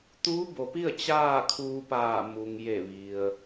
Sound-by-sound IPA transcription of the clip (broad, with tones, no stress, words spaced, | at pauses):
t̪uː˧˥bo˩pi˥˨ə̯ t͡ɕaː˥˨kʰuː˧paː˧˩ mu˩ŋje˧˩ʋi˩ə̯